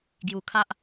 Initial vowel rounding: rounded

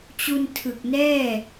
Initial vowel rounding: rounded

